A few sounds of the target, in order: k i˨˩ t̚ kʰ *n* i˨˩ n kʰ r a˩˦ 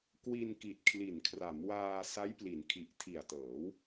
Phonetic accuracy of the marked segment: incorrect: l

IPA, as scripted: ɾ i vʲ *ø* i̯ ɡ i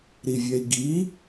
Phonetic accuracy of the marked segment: incorrect: ɛ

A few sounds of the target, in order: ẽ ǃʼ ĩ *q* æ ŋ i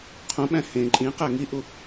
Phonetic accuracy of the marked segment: correct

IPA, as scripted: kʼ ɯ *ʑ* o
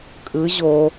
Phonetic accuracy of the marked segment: correct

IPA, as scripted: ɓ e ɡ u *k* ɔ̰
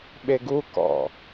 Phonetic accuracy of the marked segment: correct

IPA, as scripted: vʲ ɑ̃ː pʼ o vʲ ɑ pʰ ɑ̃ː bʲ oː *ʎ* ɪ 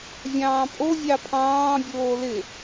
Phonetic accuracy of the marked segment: incorrect: l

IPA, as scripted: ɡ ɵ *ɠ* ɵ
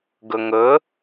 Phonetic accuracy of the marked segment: incorrect: ŋ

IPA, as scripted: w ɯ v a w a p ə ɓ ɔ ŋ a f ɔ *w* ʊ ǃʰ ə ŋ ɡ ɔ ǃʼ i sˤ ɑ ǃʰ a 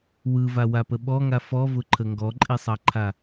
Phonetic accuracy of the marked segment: incorrect: v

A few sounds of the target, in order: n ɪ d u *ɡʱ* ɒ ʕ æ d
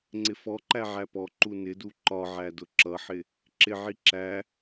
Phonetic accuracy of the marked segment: incorrect: ǃ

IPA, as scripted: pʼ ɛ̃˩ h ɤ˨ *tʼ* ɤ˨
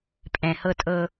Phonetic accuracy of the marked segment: correct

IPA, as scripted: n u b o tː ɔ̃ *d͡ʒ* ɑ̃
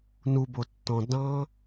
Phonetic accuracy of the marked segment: incorrect: d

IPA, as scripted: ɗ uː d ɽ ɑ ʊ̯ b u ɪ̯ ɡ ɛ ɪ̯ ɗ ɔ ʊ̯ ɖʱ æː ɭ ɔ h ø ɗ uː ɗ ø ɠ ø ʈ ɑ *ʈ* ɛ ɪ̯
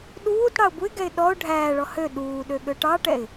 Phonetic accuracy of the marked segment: correct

